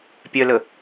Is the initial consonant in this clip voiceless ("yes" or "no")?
yes